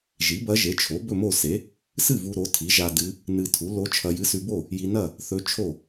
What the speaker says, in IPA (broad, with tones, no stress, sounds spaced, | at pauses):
ʒ i˩˥ b ɐ˧˥ ʒ e˩˥ t͡ʃʰ o˩˥ b ɵ˥˨ m o˥˨ s e˩˥ | s ɨ˥˨ v u˧ ɾ o˩˥ tʰ i˩˥ ʒ a˧ d ɨ˧˥ | n ɨ˧ tʰ u˩˥ l o˧˥ t͡ʃʰ ɐ˧ j ɨ˧˥ s ʉ˧ b o˥˨ | j i˧ n ɐ˥˨ | θ ɵ˧˥ t͡ʃʰ o˥˨